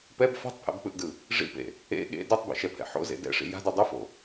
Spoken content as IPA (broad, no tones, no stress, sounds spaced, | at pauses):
p ɛ b f a̤ tˤ pʰ ɛ̰ b k͡p ɯ ʔ d ɯ | ʐ ḭ p ḛ | ḛ ɠ ḛ d u tˤ b ḭ ʃ ɛ pʰ ɛ̰ ħ o̰ z ḛ d ɛ̰ ʂ ḭ j a̤ d u dˤ ʌ f o̰